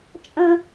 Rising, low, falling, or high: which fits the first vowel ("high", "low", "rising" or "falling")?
high